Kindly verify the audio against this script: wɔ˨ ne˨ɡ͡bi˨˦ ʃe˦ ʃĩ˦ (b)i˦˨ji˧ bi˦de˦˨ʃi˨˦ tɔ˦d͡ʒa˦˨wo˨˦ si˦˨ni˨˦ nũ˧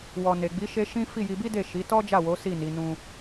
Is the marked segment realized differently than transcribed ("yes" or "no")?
yes